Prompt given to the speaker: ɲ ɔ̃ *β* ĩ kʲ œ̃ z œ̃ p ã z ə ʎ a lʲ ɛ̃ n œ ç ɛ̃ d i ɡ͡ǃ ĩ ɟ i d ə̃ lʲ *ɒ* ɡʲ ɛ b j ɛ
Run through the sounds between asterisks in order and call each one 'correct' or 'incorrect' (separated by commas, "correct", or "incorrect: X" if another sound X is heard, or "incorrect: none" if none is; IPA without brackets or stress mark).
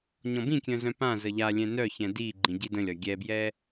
incorrect: b, correct